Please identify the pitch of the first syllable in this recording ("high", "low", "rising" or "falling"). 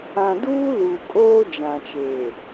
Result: low